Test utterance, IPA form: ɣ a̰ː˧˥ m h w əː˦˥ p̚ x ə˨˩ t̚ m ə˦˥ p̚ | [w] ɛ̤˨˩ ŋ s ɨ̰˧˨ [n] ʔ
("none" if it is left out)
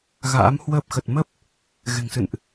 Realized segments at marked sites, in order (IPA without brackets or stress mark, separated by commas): ɣ, n